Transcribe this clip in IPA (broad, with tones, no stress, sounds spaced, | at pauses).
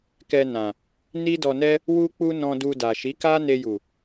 k ɛ˧ n ã˨ | n i˦ d ɔ˧ n ɛ˦ | w u˦ k͡p u˦ n ɔ̃˧ d u˧ d a˨ ʃ i˨˦ k a˦ n e˧ j u˨